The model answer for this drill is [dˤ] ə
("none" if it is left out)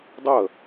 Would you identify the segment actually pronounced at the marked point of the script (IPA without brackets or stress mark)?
dˤ